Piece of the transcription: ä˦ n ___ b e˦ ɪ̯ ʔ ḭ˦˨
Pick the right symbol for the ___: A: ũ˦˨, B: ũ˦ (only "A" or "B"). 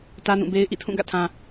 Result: A